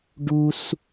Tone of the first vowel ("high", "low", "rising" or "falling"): high